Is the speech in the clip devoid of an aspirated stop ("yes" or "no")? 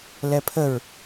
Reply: no